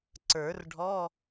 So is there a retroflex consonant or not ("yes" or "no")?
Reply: yes